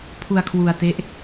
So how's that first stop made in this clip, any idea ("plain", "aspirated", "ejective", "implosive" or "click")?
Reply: aspirated